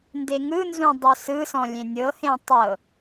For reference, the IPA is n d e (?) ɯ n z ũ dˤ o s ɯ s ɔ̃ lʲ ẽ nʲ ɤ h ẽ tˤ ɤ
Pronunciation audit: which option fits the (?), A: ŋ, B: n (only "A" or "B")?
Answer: A